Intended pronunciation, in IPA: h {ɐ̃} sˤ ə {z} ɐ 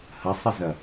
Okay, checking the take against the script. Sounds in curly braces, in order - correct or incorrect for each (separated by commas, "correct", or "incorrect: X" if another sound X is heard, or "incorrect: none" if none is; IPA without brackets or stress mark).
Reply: incorrect: ɐ, correct